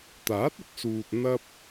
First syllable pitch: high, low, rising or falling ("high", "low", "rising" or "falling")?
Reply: rising